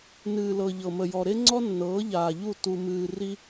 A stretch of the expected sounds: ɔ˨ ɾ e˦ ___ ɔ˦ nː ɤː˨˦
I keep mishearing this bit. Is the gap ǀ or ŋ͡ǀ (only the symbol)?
ŋ͡ǀ